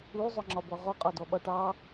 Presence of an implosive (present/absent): present